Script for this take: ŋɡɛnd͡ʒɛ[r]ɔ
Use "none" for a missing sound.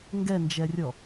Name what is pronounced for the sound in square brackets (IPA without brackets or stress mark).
rʲ